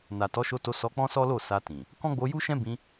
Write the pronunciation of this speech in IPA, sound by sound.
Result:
n a˨ t ɔ˨˦ ʃ o˧ t o˧ s ɔ˧ k͡p ɔ̃˦ s ɔ˦ l o˦˨ s a˧ t ĩ˨ | k ɔ̃˦ ɡ͡b o˧ j u˦ ʃ ɛ̃˦ b ĩ˧

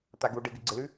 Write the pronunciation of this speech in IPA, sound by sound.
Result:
t̪ a ɡ u ɖ ɨ ɡ ɨ ɡ͡ǀ ɪ l ʉ

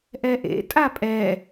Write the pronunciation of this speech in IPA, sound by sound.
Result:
ʔ ɛ ʔ ḛ tʼ a pʼ ɛː

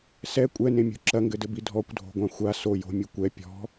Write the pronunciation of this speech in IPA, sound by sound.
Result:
s ɛ kʷʼ ɛ n ẽ mʲ o̤ ǁ ɐ ŋ ɡ ɘ d ɘ b i dʱ ɔ kʷ dʱ o̤ ɡʷ ã xʷ a s o j o̤ mʲ u kʷ ɛ pʲ ɔ̤

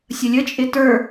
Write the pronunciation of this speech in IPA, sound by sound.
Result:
sʲ ə lʲ ə t͡ʃʼ ɪ t ə˞

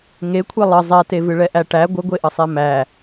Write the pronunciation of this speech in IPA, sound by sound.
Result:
ŋ e kʷʰ e lˠ ə zˤ ɛ t e v ɨ ɭ ɛ ʔ æ ʈ æ ɡʷ ə ɡʷ e ʔ ə sˤ e m æ

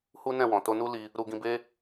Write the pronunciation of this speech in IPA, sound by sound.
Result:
h u˦ n ɛ̃˦˨ w ɔ̃˨ t o˧ n u˦ l i˧ | ɾ u˧ ɡ ĩ˧ b e˦

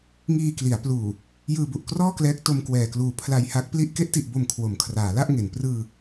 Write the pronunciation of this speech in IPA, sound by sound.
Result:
ŋ iː˧ k l i˩˦ a̯ p l uː˨˩ | j ɯː˧ b u˨˩ ʔ k r ɔː˥˩ k l ɛː˦˥ k̚ t o˧ m k w ɛː˨˩ k l uː˨˩ pʰ l a˧ j h a˦˥ k̚ p l i˥˩ ʔ k e˦˥ ʔ t i˨˩ ʔ b o˨˩ m kʰ w o˩˦ m kʰ r aː˩˦ l a˥˩ ʔ ŋ e˩˦ n p r ɯː˧

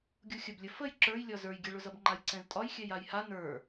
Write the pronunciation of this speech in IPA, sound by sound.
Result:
ɡʲ u xʲ ə b lʲ ə f ə j ǁ ə˞ j lʲ ɒ z ə˞ j ɡʲ ɛ ɭ ʊ z ʌ b ŋ͡ǃ a j ǀ ɛ̃ z tʼ ɒ j xʲ ɛ j a j h a n ə˞

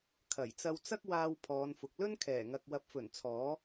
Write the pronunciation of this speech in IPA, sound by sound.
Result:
kʰ ɐ˨˩ j t͡s ɐ˧ w t͡s ɐ˥ k̚ w aː˧ w pʰ ɔː˨˧ n f ʊ˨ k̚ l ɵ˥ n kʰ ɛː˨˩ ŋ ɐ˨ k̚ w ɐ˨˥ p̚ f ɵ˨˩ n t͡sʰ ɔː˨˥

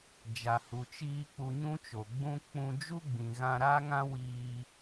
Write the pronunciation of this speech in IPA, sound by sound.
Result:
d͡ʒ a˨ h u˨ t͡ʃ iː˧ k͡p u˧ ɲ ũ˦ t͡ʃ o˨ ɡ͡b ũ˦ k͡p ũ˧ d͡ʒ u˦ ɡ͡b ĩ˨ ɣ ã˧ ɾ a˦ ŋ ã˦ w iː˧

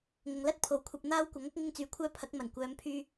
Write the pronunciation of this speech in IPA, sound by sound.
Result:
ŋ ʊ˨ ŋ l ɐ˥ t̚ pʰ o˨ w kʷʰ ɐ˧ p̚ n̪ aː˥ w kʷ ɐ˨˥ ŋ ɐ˨˥ k̚ ŋ ɪ˥ ŋ t͡s yː˨ kʷʰ œː˥ pʰ ɐ˨˥ k̚ m ɐ˨˩ n kʷ œː˨˧ m pʰ yː˧

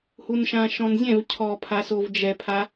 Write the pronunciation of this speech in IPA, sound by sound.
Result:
h u n ʃ ã ʃ ɔ̃ n zʲ ɛ̃ v cʰ ɔ pʰ a s o v d͡ʒ ɛ pʰ a

